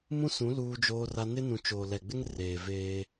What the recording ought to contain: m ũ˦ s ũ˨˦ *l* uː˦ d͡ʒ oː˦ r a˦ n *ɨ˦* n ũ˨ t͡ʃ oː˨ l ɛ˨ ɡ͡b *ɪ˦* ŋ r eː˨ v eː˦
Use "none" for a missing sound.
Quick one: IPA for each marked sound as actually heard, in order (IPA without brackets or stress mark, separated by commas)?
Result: l, ɪ˦, ɪ˦